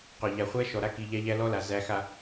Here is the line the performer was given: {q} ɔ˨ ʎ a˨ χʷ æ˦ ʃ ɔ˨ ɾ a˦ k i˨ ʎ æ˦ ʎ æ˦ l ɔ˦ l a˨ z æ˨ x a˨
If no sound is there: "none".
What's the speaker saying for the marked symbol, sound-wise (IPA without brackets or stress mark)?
q